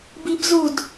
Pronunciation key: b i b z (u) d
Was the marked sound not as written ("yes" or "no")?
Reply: no